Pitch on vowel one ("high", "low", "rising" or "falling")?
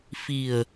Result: low